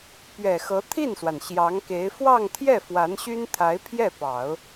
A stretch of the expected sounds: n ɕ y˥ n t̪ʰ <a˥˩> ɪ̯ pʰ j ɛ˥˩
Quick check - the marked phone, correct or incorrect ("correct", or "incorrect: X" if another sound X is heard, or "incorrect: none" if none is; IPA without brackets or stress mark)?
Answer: incorrect: a˧˥